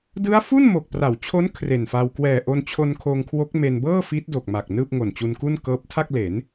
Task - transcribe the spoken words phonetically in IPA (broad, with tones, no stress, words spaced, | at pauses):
dɯ˦˥a̯fu˥˩n mo˨˩k̚ pra˩˦wt͡ɕʰo˦˥n kʰre˨˩nfa˧w kwɛː˨˩ʔo˧nt͡ɕʰo˧n kʰoː˧ŋkʰwo˦˥k̚me˧n bɤː˥˩fi˦˥t̚ do˨˩k̚ma˨˩k̚ nɯː˥˩p̚ŋo˨˩nt͡ɕu˧nku˥˩n kɤː˦˥p̚tʰa˥˩k̚le˩˦n